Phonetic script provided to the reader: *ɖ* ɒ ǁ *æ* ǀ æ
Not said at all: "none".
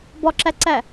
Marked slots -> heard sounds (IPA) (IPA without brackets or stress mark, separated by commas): b, æ